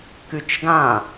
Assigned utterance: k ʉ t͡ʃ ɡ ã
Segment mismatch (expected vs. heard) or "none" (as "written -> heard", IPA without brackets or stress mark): none